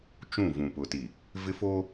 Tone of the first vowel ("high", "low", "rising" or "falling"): falling